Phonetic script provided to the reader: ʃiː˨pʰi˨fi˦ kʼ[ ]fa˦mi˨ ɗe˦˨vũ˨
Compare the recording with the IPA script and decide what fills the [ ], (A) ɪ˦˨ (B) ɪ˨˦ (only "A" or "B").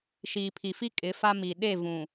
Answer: B